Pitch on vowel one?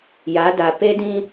rising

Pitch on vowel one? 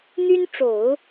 high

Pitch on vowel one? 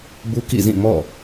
high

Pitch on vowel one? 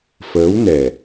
rising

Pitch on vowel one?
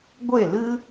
falling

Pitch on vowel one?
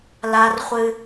high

